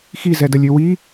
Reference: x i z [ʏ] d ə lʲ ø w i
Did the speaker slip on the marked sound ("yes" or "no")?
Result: yes